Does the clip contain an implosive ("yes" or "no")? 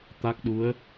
yes